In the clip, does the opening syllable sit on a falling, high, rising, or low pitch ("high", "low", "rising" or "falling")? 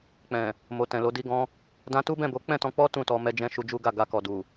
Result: low